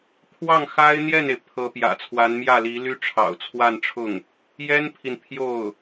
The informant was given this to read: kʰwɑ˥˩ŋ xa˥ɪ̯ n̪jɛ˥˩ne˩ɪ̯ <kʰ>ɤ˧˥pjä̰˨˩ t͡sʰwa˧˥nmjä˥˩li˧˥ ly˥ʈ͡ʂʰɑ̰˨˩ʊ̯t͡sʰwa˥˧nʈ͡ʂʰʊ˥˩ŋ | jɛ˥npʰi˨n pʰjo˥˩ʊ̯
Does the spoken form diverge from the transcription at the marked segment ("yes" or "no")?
yes